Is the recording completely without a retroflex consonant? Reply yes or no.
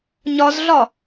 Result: yes